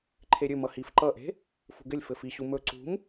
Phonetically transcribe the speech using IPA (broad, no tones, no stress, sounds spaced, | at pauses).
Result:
ǃʰ e ɾʲ ɵ m ʌ h i f ǃ ʌ ʔ e̤ | f ṳ ɡ ɘ lʲ f ɘ f i ɕ u m ɵ ǀ ṳ m